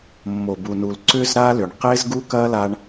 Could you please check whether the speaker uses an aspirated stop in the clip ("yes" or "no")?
no